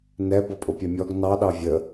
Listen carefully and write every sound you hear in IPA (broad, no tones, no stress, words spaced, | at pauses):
nɛ bʌpʼʊpʲɛmʲɔɡ nɑ ɗɑvʲə